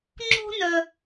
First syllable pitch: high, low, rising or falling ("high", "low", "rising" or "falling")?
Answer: high